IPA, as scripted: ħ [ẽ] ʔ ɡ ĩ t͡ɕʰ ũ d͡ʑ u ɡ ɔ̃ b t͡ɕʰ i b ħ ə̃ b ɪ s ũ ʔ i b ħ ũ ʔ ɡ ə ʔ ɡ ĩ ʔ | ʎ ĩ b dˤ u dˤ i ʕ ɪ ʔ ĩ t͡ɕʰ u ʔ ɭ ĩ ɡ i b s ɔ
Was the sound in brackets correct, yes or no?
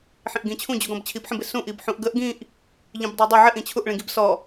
no